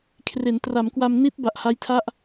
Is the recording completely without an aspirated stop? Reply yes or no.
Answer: no